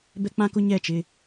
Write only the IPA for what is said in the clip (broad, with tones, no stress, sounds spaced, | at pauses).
b ɛ˦ k͡p ã˦ k ʊ˦ ɲ ɛ˦˨ t͡ʃ ɪ˦